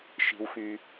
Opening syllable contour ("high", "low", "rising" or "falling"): low